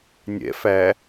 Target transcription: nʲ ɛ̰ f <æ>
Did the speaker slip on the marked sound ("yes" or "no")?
no